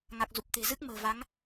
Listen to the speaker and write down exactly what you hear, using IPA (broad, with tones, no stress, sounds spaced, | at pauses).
ŋ a˨˩ k̚ z u˨˩ p̚ t̪ e̤˨˩ z ɨ˦˥ k̚ m ə̤ː˨˩ v a˨˦ ŋ